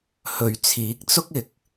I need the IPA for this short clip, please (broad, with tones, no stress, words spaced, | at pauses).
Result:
hɵ˨ɥt͡sʰiː˨˥k̚t͡sʊ˥k̚ ɪ˨˥k̚